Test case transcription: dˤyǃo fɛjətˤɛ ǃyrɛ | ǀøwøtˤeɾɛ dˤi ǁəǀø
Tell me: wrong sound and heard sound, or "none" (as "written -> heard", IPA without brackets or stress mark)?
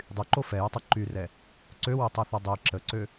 ɾ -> θ